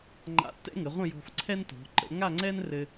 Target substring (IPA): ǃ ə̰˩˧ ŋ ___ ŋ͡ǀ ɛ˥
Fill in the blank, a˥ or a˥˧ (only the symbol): a˥˧